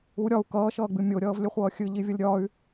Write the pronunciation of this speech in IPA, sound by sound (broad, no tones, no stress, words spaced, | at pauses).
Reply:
u ɾʲɒu̯ kʌːʃʌːɡ͡bɨ mʲoɾʲʌːvlʲəχʷʌː xʲɨʎivʲʌlʲ ɾʲɒy̯